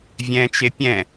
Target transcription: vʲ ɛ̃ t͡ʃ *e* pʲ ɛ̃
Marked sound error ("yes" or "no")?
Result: no